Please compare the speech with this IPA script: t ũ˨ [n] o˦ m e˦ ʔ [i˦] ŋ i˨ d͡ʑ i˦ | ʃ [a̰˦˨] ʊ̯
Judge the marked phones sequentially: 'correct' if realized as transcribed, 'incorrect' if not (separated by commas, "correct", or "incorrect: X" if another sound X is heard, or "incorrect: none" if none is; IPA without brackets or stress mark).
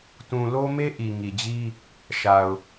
incorrect: l, incorrect: i˨, incorrect: a˨